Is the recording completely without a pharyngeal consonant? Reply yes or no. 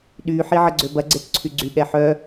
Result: no